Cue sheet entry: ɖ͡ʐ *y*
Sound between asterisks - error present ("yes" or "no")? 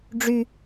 no